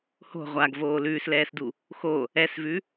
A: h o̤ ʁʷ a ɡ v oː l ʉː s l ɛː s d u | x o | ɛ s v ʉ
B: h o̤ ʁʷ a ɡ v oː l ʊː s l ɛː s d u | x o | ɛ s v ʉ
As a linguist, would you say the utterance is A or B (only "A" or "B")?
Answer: A